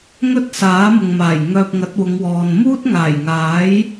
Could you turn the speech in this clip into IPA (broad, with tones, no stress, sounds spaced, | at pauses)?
ŋ ɵ˥ t̚ s aː˨˥ m ʊ˨ ŋ m aː˨˩ j ŋ œː˧ p̚ ŋ ɐ˨˥ t̚ w ʊ˨˧ ŋ w ɔː˨ n m uː˥ t̚ ŋ aː˨˩ j ŋ aː˨˥ j